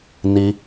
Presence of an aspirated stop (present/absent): absent